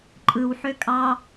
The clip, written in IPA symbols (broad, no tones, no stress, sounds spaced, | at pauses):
ǃʼ ɯ w ħ ø kʼ ɑ